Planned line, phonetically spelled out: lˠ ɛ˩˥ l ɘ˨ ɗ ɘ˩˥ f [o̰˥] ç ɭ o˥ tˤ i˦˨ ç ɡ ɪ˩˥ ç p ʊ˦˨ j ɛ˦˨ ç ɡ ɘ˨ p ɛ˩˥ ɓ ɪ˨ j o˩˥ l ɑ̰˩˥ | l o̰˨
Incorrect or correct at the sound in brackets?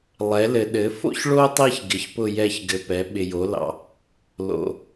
correct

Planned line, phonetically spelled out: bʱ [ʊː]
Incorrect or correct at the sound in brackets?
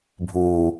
incorrect: uː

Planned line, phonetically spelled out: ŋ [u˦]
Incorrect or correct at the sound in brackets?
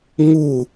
incorrect: u˦˨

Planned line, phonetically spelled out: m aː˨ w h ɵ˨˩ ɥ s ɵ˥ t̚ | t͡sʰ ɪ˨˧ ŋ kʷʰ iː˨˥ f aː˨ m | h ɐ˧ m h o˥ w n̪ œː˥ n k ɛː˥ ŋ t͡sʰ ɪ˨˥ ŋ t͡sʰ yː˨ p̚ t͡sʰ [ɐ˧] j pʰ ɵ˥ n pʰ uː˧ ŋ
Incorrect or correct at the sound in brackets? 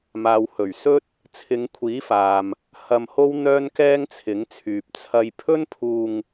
correct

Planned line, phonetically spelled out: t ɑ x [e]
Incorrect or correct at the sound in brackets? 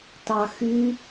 incorrect: y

